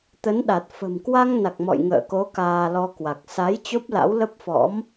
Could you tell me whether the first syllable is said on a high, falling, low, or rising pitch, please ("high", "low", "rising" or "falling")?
rising